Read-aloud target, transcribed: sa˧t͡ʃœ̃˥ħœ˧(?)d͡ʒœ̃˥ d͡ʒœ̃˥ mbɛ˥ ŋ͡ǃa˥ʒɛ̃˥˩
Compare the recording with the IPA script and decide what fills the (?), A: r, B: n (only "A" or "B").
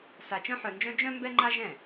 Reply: B